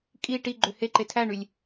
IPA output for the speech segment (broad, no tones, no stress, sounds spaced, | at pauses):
kʼ i ʈ i ɡ͡ǃ ø h e ǃ e tʰ æ ɳ y lʲ